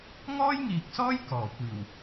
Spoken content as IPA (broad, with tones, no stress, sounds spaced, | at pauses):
ŋ ɔː˥ j ŋ iː˨ k̚ s ɔː˥ j k ɔː˨˩ kʷ iː˨˩ w